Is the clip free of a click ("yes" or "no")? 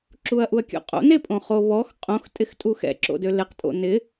no